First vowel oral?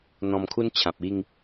no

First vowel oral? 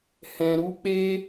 no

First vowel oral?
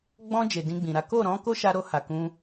no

